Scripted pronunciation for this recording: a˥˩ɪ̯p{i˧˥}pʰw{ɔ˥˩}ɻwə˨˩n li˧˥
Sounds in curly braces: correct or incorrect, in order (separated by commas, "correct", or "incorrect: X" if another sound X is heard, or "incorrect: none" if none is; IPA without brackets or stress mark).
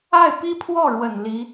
incorrect: i˥, correct